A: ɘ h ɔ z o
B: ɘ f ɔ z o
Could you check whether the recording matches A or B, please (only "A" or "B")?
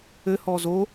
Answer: A